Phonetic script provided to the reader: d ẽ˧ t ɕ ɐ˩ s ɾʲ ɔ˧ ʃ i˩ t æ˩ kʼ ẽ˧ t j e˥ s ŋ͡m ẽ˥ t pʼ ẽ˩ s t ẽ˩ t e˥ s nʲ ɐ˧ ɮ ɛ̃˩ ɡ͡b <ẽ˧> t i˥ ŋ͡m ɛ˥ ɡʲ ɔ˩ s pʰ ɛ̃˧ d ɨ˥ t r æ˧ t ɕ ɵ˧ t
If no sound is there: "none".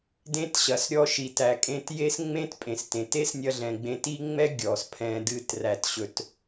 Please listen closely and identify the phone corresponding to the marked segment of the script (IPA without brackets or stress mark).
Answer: ẽ˧